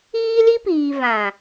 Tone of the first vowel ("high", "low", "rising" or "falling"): high